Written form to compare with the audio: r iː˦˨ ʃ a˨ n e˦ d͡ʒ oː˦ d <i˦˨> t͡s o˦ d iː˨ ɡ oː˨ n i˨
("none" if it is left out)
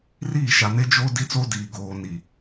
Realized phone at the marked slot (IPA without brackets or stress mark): i˦